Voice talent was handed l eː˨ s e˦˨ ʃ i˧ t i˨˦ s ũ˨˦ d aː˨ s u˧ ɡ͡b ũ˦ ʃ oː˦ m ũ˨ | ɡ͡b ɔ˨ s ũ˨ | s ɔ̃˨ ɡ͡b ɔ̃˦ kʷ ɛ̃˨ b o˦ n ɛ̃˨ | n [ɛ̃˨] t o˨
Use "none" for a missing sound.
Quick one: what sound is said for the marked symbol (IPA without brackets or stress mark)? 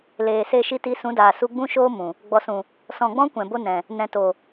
ɛ̃˨